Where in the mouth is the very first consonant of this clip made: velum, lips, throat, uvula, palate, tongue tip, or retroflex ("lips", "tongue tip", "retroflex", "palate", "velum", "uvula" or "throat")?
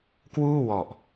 velum